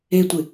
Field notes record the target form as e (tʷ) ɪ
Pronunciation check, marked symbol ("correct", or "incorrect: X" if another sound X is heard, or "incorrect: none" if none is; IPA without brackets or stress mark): correct